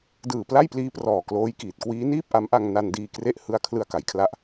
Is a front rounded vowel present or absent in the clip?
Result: absent